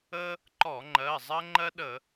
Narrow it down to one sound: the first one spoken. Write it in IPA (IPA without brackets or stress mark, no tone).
ə